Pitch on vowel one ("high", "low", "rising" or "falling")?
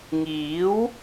rising